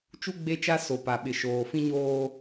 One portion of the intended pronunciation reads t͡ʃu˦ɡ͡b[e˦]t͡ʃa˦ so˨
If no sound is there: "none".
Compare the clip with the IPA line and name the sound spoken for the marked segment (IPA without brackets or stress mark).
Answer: e˦˨